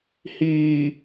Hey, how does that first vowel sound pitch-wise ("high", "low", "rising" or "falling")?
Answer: low